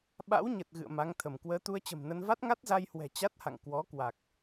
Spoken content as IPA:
ɓ a̰˧˥ w ɲ ə˨˩ t̚ ɣ ɨ̰˧˨ ə̯ m a˨˦ ŋ t̪ʰ ə˧˩ m k w əː˨˦ t̪ u˧ ə̯ t͡ɕ ə̤˨˩ m n ə˧ n v a˦˥ t̚ ŋ a˦˥ t̚ z a˧ j h w ɛ̤˨˩ t͡ɕ a˦˥ t̚ h a̰˧˨ ŋ k w ɔ˨˦ k w a˨˩ k̚

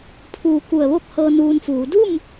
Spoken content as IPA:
pʰ uː˧˩ k u˧˩ ə̯ ʋ o˥˨ k̚ h ɤː˧ n uː˧ n f uː˩˧ d u˥˨ m

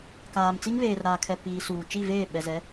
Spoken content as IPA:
k aː˨ m t͡s i˦ ŋ β eː˨ r ɾ aː˨ kʰ ɛ˨ p iː˨ s uː˨ t͡ʃ i˦˨ v eː˦˨ ɓ ɛ˨ z ɛ˨˦

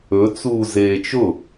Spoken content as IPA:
ɵ t͡s uː z eː t͡ʃ ʊ

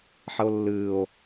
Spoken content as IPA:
ħ ə o̯ lː ɨː o̯

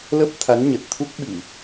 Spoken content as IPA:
l ə˦˥ p̚ t̪ʰ a˨˦ n ɲ ə˨˩ t̚ t̪ʰ u˦˥ k̚ ɓ i˧˩˨

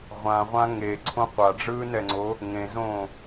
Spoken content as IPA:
ʁʷ ã ʁʷ ã ŋ e ǀʰ õ qʷ a ɖ͡ʐ ɯː n ɛ ŋ͡ǀ o | ŋ ẽ z õ

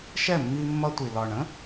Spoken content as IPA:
ʃ ɛ˦˨ mː i˧ mː ʌ˧ tʷ i˨ l ɒ˨ ɳ ə̃˦

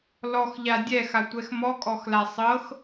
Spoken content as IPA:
l ɔ x ʎ a dʲ ɛ x a tʷ ɛ x m ɔ kʼ ɔ x l a sˤ ɤ x

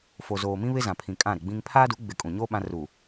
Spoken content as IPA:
f o˨ z oː˨ m ĩ˦ β ɪ˦ z ã˨ pʰ ĩ˨ kʼ ã˦˨ ɾ ɪ˨ ɡ͡b ĩ˦ ŋ pʰ aː˦ d u˨˦ ɡ͡b ɪ˨ kʼ ũ˨ ɲ oː˦ ɓ ã˦ r u˨

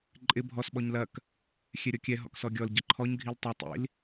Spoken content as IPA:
ǃʼ ɪ bʱ ɔ s ɓ ɔ ɲ l ɐ k | xʲ ɛ ɾʲ ɔ kʲ ɛ ɦ ɔ̰ k s ɔ ɡʲ ɔ l ɟ ɐ ǃʰ ɔ ɲ ɡʱ i l tˤ ɐ tˤ ḭ l

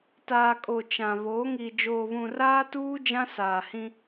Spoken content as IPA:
t aː˨ kʼ o˨ t͡ʃ ã˨ β oː˨˦ ŋ i˨ d͡ʒ oː˨ β ũ˨ r aː˦ t uː˦ d͡ʒ ã˦ s aː˨ h ĩ˦

